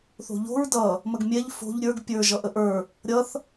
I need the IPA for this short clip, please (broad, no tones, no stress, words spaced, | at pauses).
θo̤ʎo̤ɹ dʌ | məɡmʲɛʎ fo̤ʎ ɾʲə˞ɡ pʲə˞ ʒʌʔəʔə˞ | ɾʲʌθ